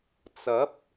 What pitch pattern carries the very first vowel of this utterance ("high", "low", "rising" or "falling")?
rising